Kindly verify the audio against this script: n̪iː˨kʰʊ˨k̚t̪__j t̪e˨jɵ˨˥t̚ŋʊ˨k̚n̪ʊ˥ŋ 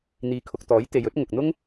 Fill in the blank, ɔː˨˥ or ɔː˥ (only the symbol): ɔː˨˥